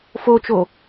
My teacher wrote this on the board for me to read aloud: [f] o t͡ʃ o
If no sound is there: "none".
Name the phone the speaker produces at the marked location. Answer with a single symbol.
f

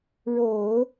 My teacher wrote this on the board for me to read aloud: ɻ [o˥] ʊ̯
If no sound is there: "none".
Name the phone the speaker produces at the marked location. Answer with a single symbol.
o˨˩˦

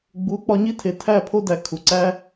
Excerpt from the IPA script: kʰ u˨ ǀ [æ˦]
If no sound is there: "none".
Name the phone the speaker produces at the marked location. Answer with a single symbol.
æ˦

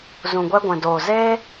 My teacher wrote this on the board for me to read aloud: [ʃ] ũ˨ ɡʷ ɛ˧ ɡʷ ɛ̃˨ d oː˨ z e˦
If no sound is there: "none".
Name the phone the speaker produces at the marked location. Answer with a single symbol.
z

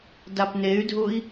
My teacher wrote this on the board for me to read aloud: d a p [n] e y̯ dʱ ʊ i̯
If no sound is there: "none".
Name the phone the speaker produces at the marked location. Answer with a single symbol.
n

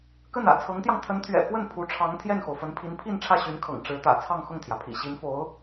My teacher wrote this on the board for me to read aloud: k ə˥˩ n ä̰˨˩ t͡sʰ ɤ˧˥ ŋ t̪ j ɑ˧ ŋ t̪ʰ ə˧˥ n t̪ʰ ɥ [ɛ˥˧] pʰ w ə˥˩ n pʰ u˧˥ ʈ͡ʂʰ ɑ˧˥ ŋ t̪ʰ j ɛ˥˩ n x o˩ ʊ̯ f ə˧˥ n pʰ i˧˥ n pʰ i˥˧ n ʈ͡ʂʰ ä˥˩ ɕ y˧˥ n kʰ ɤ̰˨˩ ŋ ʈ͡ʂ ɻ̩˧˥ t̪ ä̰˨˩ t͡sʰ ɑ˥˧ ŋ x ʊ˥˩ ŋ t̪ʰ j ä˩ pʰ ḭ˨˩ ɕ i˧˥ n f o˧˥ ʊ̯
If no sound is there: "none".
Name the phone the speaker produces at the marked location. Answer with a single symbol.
ɛ̰˨˩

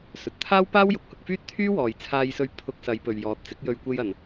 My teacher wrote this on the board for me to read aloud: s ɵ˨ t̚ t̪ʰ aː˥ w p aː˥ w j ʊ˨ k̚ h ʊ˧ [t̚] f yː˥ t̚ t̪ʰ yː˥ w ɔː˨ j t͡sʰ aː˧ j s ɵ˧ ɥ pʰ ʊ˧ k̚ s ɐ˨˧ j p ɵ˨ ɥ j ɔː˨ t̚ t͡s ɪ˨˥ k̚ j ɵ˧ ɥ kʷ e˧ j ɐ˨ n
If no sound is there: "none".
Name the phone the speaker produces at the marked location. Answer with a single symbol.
k̚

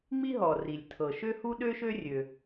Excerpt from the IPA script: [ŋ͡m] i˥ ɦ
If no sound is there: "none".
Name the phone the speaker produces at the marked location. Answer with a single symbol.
ŋ͡m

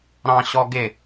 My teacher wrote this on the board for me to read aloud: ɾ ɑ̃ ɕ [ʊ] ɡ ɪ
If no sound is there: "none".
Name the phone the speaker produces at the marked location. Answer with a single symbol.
ɔ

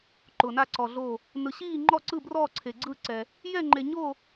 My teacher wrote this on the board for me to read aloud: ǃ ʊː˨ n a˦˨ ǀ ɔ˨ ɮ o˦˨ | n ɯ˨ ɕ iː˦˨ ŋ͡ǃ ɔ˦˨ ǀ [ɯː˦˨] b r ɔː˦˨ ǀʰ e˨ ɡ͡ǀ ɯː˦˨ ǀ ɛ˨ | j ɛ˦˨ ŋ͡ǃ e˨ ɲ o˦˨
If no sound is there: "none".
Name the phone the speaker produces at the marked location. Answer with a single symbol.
ɯ˦˨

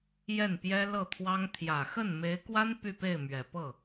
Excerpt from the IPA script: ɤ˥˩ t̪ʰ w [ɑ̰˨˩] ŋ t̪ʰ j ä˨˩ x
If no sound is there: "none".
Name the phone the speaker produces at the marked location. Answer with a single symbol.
ɑ˥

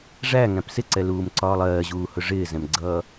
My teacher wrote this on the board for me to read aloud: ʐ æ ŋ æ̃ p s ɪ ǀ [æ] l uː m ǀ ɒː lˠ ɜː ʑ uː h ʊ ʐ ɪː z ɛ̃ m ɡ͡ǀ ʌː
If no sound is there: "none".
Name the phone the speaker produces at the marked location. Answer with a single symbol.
ɛ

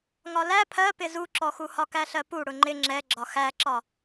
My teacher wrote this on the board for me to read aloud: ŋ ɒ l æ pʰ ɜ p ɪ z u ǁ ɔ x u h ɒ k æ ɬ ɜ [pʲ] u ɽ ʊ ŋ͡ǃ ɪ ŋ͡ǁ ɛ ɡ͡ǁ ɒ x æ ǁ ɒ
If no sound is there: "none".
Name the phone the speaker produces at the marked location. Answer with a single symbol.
p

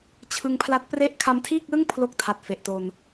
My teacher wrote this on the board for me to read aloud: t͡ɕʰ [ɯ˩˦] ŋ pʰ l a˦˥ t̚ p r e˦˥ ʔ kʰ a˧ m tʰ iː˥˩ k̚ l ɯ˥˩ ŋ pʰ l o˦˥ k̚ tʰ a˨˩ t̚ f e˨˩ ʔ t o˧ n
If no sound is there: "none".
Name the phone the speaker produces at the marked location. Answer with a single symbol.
ɯ˧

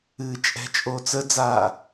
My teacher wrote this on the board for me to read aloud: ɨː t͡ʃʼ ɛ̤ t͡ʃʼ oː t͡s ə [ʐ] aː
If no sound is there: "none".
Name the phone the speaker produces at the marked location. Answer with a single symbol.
d͡z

